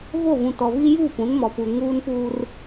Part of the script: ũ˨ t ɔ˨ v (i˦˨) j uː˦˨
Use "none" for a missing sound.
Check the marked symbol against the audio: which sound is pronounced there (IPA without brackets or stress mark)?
i˦